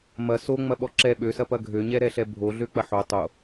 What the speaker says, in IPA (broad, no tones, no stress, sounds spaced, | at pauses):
m ɐ s o ŋ͡m ɐ ɓ ɔ ǁ ɛ ɓ ø s ɐ p ɐ ɡʱ ø ɲ ɛ ɾ ɛ ɬ ɛ bʱ o ɮ ø k͡p ɐ ħ o tˤ o